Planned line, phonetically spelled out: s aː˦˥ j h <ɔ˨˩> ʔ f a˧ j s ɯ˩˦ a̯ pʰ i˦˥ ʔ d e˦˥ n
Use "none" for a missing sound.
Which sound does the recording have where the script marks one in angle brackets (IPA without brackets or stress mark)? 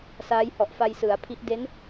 ɔ˨˩